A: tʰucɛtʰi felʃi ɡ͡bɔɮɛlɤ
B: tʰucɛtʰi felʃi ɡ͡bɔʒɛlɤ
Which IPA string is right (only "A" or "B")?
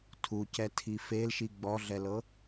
A